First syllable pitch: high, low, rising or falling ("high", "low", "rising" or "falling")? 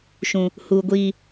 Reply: high